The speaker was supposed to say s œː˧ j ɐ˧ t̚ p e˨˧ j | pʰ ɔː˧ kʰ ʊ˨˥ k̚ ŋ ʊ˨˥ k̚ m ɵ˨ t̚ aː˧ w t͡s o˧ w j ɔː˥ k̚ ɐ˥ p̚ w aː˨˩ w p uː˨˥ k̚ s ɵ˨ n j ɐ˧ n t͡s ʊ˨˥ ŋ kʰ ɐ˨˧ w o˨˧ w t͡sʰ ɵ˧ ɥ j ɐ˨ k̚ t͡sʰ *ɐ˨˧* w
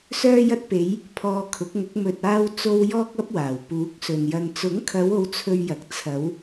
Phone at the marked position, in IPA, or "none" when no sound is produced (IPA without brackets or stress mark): ɐ˨˧